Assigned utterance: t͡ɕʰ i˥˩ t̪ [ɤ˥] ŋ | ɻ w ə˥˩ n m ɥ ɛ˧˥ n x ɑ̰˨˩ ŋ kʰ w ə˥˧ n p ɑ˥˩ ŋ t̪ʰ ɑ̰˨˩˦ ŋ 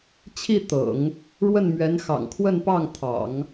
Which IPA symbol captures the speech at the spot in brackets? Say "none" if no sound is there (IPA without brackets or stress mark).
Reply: ɤ̰˨˩˦